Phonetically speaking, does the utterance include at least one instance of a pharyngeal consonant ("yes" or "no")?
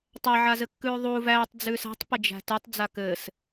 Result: yes